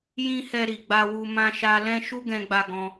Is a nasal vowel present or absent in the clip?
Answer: present